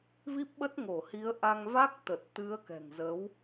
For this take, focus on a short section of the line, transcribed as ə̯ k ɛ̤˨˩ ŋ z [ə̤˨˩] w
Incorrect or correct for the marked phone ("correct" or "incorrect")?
incorrect